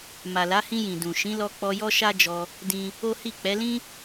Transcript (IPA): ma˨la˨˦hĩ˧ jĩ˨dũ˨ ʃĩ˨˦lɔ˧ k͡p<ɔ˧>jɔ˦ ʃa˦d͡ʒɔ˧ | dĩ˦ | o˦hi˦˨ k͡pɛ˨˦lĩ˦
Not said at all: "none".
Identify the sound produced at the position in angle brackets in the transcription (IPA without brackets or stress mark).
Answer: ɔ˧